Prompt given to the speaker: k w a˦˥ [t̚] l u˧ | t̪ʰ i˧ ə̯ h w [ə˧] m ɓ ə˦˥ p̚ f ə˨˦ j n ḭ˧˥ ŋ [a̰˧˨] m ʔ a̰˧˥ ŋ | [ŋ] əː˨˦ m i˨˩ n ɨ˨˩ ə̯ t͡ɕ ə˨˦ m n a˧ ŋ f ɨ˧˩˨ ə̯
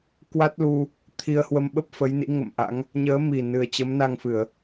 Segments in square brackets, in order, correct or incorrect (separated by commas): correct, correct, incorrect, incorrect